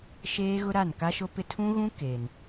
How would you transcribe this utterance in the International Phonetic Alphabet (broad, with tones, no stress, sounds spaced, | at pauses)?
ʃ eː˦ ɣ ʊ˦ ɾ a˦˨ n k a˦ ʃ o˦ p ɪ˦ tʰ ũ˦ ɣ ũ˦ k eː˨ n